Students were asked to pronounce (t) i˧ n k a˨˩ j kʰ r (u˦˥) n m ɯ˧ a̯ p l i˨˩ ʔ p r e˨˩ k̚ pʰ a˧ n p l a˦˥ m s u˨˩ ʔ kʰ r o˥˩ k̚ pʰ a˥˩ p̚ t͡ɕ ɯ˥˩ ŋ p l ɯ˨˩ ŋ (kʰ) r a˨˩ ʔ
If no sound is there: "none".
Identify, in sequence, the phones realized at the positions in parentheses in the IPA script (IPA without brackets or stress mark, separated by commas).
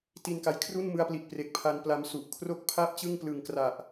t, u˥˩, k